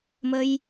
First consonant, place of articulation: labial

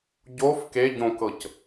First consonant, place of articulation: palatal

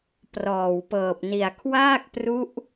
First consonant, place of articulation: labial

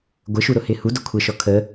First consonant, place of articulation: velar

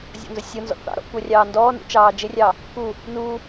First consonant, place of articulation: alveolar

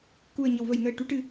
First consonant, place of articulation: velar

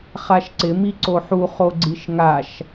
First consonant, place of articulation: uvular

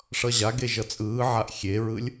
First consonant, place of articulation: retroflex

